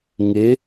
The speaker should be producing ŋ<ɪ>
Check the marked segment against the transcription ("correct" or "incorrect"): correct